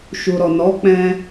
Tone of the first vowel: low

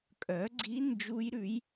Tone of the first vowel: rising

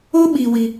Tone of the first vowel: high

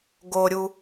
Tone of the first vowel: low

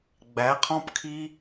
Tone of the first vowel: rising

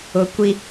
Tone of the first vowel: low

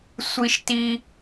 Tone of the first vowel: high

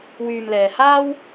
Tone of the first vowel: low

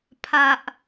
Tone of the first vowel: low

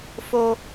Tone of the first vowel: high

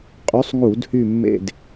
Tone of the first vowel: rising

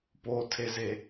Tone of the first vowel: low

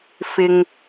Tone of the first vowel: low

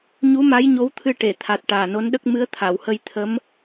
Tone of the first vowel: rising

